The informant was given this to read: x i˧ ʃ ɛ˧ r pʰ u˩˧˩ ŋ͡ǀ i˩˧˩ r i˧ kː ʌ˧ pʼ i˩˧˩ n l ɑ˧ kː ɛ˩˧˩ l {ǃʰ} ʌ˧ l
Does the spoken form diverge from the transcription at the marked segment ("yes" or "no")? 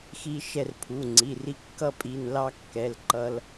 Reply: yes